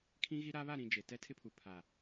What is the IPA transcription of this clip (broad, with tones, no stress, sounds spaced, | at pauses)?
kʰ ĩ˦ ɣ i˦ ɾ a˦ β a˦˨ ɾ ĩ˨ d͡ʒ e˨ t ɛ˦ tʰ ɪ˦ pʰ u˨ pʰ a˨